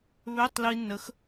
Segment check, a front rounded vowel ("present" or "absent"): present